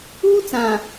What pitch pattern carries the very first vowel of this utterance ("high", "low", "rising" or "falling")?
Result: high